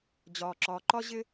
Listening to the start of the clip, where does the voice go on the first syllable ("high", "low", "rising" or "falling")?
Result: low